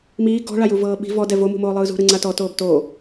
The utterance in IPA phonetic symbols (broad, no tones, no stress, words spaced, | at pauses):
miː ɡɔ̤ ɭajuvɤːɓi̤ vɔ dɛvo mṳmoːlˠɯːzṳ ɾɯŋ͡ǀatɔ toːbtoː